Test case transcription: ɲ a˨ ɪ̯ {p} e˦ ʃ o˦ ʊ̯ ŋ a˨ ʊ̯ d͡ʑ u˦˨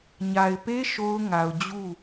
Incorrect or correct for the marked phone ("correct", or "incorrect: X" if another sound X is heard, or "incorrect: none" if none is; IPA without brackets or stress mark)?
correct